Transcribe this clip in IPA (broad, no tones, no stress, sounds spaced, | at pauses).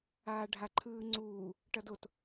aː ɖʱ a ǃʰ ɯː ŋ͡ǀ uː | ʈ ʌ d o t